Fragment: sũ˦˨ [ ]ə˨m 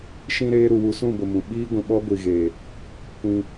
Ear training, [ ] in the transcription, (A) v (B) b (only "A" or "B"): B